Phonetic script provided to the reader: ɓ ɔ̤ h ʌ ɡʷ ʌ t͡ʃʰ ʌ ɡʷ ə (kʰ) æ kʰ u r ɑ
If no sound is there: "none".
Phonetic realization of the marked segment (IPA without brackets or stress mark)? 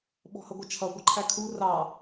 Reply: ǃʰ